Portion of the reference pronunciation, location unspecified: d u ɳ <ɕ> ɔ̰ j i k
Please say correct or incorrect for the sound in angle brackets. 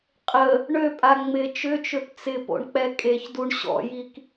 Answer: correct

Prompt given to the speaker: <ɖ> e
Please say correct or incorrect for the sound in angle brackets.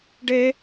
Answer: correct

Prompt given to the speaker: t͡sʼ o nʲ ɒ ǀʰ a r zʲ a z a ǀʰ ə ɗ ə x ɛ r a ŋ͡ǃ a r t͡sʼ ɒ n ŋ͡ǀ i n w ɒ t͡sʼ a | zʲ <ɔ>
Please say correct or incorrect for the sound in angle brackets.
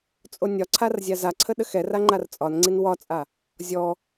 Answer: correct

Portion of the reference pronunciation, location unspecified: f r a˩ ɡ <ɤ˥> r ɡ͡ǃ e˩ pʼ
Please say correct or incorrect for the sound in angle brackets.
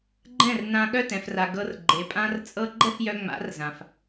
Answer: incorrect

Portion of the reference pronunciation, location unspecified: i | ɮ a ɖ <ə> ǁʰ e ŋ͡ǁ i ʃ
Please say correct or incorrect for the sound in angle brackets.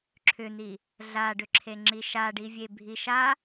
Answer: incorrect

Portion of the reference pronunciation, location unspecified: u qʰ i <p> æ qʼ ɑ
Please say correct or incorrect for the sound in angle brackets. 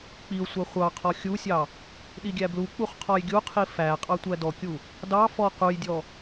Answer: incorrect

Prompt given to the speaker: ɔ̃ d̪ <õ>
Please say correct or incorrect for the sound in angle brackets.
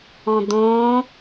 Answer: correct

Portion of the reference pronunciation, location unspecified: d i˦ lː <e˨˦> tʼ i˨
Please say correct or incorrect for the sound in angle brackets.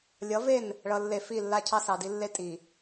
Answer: incorrect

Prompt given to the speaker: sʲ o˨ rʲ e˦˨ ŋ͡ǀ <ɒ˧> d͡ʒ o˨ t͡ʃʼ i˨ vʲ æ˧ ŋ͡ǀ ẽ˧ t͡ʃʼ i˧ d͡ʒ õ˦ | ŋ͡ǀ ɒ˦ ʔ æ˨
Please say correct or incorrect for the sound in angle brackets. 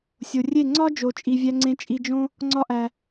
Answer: incorrect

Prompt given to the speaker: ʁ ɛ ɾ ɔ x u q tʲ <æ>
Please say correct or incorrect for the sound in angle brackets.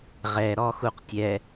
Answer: incorrect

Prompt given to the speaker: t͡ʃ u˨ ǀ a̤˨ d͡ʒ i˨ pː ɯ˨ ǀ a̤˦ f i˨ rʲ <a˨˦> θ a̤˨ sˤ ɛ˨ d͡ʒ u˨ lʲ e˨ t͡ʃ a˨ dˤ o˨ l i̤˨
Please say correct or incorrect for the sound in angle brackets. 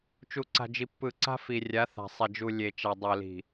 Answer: correct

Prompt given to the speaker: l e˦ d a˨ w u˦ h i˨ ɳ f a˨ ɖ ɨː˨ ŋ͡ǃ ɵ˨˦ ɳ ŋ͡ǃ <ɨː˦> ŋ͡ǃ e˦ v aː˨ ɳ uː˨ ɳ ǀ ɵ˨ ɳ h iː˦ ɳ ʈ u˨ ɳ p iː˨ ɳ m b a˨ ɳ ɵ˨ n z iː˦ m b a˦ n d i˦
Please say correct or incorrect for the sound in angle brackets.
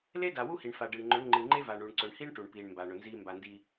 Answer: incorrect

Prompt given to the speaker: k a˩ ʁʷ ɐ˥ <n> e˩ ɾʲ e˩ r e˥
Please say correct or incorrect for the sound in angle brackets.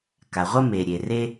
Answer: incorrect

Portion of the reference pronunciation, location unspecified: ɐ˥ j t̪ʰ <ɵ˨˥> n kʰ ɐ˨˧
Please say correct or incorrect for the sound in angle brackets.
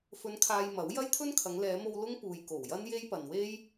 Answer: incorrect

